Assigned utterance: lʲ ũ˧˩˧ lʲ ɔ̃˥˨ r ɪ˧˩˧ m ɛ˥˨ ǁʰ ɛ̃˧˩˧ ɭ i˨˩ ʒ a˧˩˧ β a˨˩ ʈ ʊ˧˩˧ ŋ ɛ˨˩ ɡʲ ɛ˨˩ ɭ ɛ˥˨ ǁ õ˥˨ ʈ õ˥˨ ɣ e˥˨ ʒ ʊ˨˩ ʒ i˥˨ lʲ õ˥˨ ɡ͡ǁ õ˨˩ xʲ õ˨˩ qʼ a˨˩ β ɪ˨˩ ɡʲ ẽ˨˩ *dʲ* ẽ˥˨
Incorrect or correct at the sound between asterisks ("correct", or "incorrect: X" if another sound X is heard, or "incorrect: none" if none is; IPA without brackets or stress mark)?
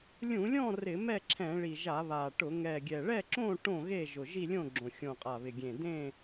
incorrect: d